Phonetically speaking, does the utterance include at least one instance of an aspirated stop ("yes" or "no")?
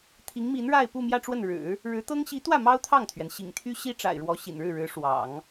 yes